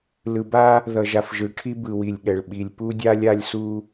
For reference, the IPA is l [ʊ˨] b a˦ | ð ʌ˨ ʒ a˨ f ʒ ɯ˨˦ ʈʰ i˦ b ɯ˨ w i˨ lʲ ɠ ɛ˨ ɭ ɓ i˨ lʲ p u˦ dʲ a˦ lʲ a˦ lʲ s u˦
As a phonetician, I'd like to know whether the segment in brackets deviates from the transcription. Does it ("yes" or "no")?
yes